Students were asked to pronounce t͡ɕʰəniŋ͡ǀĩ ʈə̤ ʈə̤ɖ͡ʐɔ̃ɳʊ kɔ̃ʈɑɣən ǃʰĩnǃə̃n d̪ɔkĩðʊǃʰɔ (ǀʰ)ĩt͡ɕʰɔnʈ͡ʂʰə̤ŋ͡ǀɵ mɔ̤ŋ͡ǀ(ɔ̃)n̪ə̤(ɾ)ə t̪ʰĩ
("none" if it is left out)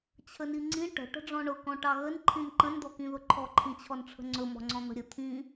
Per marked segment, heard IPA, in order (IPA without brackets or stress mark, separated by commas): ǃʰ, ɔ̃, ɾʲ